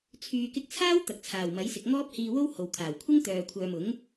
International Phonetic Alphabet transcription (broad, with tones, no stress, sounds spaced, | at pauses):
t͡sʰ yː˨ k ɪ˧ k̚ t͡sʰ aː˥ w t̪ ɐ˨ k̚ t͡sʰ aː˨˩ w m ɐ˨˥ j s ɪ˨ k̚ ŋ ɔː˥ p̚ h iː˧ w o˥ w h o˨ w kʰ aː˨˩ w kʷʰ ɪ˥ ŋ t̪ œː˨ kʷʰ œː˧ m ʊ˨˥ ŋ